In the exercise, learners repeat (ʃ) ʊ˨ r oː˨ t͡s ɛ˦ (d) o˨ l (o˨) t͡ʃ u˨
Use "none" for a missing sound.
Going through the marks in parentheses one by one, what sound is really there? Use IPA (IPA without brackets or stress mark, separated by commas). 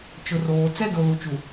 t͡ʃ, d, u˨